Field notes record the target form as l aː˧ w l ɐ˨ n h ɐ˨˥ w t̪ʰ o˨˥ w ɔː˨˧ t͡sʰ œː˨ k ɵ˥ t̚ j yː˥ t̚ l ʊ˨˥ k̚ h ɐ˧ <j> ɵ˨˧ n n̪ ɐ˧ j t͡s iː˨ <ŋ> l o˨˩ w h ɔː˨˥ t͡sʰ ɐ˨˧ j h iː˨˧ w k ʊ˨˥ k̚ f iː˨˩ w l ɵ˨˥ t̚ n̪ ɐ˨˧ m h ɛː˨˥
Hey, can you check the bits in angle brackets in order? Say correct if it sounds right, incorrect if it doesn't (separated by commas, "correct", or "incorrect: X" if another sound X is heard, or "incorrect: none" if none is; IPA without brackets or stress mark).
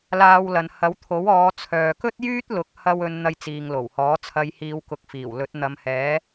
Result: incorrect: w, correct